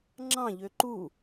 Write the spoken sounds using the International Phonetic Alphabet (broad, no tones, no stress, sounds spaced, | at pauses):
ŋ͡ǁ ɑ̃ ʎ ø ǃ u